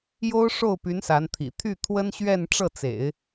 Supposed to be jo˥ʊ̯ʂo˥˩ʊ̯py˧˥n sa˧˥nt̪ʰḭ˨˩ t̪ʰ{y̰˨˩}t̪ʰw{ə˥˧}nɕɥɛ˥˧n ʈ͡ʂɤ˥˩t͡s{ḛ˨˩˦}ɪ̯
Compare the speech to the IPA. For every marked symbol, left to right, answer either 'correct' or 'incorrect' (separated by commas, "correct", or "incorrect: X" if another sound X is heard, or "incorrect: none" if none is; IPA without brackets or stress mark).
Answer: incorrect: y˥˩, incorrect: ə˥, correct